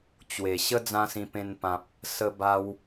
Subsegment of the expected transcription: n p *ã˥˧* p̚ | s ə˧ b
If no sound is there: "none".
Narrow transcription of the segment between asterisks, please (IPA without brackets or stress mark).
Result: ã˨